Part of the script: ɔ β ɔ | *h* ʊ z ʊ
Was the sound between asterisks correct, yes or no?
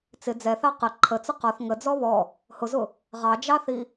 yes